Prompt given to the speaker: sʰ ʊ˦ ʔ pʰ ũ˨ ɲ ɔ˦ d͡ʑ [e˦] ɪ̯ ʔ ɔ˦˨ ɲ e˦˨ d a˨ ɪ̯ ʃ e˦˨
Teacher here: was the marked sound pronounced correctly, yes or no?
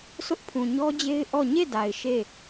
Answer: yes